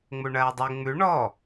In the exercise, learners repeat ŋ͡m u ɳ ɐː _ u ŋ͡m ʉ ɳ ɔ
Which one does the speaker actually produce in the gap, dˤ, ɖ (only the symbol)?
dˤ